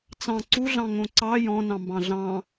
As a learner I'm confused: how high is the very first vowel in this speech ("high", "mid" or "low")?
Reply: low